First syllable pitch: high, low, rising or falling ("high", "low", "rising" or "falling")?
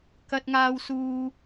high